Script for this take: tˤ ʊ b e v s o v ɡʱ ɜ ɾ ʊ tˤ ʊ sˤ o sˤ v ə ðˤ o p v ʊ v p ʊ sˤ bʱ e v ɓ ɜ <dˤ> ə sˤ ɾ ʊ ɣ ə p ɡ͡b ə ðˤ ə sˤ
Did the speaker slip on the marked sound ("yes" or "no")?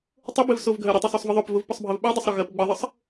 no